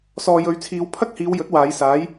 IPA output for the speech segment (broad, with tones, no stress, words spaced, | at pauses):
sɔː˨jɵ˨˥ɥ t͡sʰiː˨˧wpʰɐ˥k̚hiː˨˧w jɵ˨˥t̚waː˨˧jsaː˨˥j